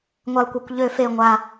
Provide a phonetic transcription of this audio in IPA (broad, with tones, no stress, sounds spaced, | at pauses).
ŋʷ e˨˩ lˠ kʷ e˨˩ kʷ ʎ ø˧˩˧ f e˨˩ ŋʷ a˨˩